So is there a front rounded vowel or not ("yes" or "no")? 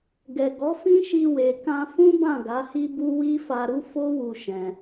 no